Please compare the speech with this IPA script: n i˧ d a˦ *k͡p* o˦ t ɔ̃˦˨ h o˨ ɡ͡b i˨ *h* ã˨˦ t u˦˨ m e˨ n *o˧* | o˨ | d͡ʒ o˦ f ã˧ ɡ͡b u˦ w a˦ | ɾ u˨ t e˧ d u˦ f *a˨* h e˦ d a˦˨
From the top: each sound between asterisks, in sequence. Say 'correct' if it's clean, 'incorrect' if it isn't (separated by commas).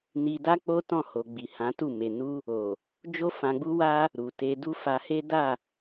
correct, correct, incorrect, incorrect